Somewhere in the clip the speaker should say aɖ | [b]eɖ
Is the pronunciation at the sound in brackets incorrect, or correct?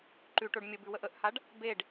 correct